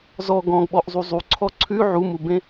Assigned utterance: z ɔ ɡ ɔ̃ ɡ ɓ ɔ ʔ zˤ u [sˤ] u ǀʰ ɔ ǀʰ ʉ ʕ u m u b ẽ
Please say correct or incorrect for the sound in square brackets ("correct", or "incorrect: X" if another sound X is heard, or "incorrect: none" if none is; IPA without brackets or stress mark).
incorrect: zˤ